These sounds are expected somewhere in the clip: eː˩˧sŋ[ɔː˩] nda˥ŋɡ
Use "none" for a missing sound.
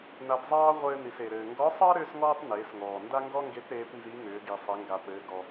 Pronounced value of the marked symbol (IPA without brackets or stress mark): ɔː˩